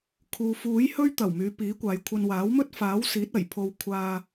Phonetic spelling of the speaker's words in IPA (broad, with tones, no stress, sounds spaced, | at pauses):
kʰ uː˨ f uː˨˥ j h ɵ˥ ɥ t̪ ɐ˨˩ w m yː˨˧ p iː˨˥ kʷ aː˨ j kʷʰ ɐ˧ n w aː˨˥ w m ɵ˥ t̚ f aː˨˥ w s iː˨˥ t̚ ɐ˨˩ j pʰ o˧ w kʷʰ aː˧